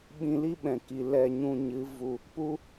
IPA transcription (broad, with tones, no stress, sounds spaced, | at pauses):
ɓ ĩ˧ l i˦ ɓ ɛ̃˨ k i˨ l ɛ˦˨ ɲ ũ˧ ɲ ɨ˨˦ v u˧ | p u˦